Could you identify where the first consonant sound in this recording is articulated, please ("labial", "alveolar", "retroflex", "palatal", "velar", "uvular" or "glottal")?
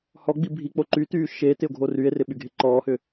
glottal